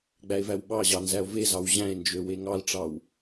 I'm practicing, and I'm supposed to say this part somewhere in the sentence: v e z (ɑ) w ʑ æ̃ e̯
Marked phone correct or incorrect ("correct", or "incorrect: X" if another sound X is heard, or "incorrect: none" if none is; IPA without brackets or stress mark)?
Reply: correct